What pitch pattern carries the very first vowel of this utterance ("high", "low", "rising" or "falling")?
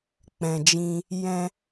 low